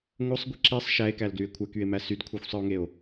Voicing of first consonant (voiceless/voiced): voiced